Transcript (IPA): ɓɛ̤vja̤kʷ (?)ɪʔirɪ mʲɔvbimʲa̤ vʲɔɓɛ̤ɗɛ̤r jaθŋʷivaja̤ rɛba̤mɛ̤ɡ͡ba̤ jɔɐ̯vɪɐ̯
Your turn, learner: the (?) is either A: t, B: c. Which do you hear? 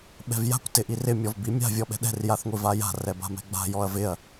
A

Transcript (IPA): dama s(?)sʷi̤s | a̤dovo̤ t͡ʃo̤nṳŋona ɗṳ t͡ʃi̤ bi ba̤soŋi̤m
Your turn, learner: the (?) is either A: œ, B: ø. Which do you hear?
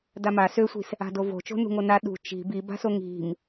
B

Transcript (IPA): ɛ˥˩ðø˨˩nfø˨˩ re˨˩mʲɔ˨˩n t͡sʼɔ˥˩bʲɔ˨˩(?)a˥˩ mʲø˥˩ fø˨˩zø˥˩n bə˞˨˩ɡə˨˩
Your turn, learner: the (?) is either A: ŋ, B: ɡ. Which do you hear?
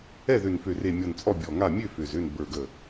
A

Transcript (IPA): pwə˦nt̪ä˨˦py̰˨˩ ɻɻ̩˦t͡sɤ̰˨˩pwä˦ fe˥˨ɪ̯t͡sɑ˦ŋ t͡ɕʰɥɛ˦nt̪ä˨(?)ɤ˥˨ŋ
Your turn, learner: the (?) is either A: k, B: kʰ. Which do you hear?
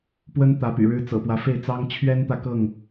A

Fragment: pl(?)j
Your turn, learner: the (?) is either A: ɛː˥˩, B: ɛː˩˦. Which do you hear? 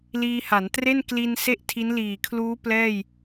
A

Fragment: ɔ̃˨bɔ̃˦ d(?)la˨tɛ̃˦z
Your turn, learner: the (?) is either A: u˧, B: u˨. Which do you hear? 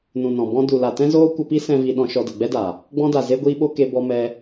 B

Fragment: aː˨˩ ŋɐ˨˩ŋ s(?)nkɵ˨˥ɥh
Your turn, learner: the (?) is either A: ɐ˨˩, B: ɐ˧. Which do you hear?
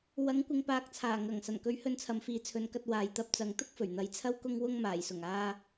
A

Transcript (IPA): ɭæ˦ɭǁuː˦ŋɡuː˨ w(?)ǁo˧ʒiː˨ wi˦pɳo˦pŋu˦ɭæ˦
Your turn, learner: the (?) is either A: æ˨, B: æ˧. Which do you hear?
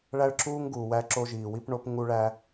B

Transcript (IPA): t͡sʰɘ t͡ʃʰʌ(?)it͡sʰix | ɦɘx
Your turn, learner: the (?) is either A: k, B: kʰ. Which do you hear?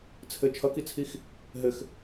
A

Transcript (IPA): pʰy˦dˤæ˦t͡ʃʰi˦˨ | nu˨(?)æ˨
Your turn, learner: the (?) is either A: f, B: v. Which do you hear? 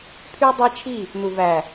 B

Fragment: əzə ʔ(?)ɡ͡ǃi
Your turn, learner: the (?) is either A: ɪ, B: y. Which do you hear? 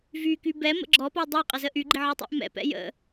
B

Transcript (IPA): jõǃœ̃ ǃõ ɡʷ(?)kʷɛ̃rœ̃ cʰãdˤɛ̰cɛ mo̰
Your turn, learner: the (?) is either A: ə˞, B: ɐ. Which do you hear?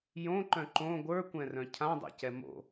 A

